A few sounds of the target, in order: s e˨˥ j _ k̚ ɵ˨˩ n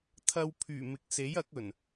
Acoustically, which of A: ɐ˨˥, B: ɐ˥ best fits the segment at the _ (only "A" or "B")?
A